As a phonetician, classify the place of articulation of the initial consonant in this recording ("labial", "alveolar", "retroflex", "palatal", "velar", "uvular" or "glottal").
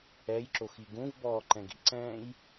palatal